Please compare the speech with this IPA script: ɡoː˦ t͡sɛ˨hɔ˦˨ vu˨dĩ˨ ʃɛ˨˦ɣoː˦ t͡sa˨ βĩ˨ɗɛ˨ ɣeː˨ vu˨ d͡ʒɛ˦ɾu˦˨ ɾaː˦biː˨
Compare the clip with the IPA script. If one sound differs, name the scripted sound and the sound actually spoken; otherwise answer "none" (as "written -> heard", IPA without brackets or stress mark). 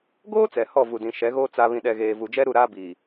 none